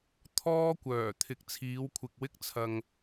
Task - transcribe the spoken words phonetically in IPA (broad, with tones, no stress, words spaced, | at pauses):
t̪ʰɔː˥kʷœː˨˩ t̪ʰɪ˨˥k̚t͡sʰiː˨˧wkʷʰɪ˨k̚wɪ˥k̚ t͡sʰɐ˧ŋ